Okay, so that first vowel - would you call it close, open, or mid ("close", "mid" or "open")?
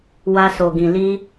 open